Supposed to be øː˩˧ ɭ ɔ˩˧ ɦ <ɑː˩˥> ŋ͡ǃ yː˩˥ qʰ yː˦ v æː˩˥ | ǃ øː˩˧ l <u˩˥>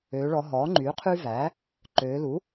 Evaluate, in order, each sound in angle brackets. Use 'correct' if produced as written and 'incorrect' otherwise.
incorrect: ɔː˩˥, correct

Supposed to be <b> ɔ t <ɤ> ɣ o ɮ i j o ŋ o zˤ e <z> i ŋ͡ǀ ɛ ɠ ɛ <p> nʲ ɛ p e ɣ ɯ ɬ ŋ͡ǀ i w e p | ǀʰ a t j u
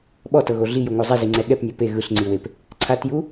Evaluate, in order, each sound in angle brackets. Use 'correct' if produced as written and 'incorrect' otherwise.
incorrect: ɓ, correct, correct, correct

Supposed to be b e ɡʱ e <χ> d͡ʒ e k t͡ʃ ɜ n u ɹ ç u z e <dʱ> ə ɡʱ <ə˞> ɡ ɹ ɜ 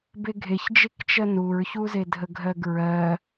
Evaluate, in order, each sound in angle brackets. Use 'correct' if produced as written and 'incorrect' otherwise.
incorrect: ç, correct, incorrect: ɜ

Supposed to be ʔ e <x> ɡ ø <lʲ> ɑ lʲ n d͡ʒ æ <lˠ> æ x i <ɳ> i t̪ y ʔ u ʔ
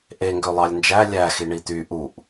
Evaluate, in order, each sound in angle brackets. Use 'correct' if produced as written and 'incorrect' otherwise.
incorrect: ŋ, incorrect: lˠ, incorrect: lʲ, correct

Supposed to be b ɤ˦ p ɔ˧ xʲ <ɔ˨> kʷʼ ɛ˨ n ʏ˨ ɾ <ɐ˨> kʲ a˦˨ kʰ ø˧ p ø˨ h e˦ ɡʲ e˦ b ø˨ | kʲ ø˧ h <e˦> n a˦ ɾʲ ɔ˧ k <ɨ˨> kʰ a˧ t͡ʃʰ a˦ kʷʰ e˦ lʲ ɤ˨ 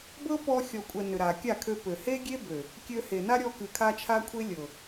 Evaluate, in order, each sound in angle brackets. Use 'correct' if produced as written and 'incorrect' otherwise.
correct, incorrect: a˨, incorrect: e˨, correct

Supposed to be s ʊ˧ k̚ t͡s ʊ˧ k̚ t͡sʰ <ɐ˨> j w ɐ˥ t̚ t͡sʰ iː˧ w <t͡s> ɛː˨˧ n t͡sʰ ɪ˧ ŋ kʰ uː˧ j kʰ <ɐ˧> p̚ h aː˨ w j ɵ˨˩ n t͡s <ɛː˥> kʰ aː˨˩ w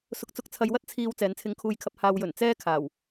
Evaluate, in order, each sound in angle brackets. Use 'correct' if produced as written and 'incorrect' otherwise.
incorrect: ɐ˧, correct, correct, correct

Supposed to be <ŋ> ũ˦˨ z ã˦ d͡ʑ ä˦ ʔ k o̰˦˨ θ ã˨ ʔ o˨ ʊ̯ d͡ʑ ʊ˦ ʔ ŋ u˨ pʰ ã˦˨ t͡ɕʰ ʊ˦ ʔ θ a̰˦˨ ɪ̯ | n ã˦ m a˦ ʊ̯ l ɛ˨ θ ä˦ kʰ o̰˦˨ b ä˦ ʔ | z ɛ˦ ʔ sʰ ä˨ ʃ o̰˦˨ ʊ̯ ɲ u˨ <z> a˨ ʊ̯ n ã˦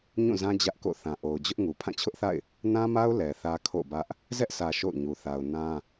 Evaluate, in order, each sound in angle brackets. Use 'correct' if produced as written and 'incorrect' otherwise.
incorrect: ɲ, incorrect: θ

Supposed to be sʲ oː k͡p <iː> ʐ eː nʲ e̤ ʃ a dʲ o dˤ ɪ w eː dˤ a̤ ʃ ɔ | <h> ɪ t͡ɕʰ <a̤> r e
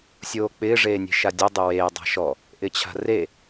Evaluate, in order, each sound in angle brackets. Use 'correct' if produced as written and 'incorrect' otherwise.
incorrect: ɪː, incorrect: ʔ, correct

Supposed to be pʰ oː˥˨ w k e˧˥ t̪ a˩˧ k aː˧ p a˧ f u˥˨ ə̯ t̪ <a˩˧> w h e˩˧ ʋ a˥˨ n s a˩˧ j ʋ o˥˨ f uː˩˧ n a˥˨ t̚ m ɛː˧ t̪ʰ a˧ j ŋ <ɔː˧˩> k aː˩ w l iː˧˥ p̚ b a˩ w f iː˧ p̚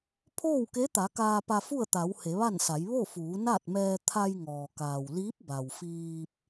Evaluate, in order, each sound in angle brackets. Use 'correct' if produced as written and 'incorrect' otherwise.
correct, incorrect: ɔː˩

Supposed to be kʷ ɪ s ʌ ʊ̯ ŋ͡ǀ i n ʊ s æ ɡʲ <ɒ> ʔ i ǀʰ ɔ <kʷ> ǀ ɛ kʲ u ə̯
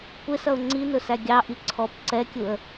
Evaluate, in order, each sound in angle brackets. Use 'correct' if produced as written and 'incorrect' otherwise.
incorrect: ɑ, incorrect: p

